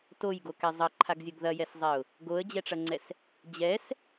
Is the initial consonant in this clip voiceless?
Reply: yes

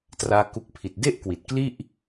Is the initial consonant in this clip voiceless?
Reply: yes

